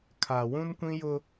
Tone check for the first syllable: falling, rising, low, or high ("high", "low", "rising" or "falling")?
low